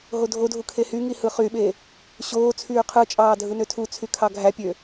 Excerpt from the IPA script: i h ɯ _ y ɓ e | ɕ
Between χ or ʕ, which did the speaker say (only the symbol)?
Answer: χ